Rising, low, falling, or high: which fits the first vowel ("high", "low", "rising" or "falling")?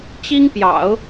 high